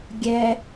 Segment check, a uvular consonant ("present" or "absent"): absent